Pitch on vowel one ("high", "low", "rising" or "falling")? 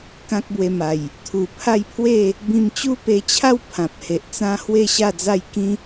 high